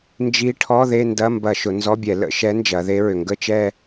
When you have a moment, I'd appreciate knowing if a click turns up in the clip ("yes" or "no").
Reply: no